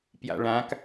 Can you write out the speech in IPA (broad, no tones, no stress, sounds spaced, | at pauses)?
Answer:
p j a̰ ɭ ã k